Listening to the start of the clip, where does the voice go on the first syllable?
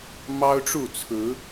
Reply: high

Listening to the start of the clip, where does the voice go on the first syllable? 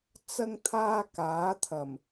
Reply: high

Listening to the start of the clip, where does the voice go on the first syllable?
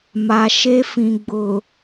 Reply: low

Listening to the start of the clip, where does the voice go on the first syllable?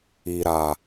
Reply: low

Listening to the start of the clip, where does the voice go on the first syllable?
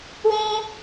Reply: high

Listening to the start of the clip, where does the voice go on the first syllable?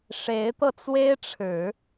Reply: rising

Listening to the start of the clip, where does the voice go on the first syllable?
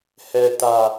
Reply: low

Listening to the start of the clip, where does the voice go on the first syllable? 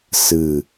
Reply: low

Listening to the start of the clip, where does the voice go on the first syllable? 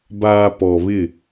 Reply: low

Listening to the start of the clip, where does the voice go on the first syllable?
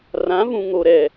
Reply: rising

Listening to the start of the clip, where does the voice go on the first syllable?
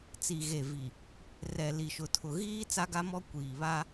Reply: low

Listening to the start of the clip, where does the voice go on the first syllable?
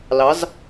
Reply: rising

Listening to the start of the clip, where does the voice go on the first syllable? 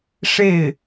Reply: falling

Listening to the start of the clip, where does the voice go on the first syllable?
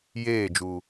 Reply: falling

